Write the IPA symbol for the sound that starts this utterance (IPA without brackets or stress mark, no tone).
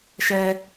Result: ʃ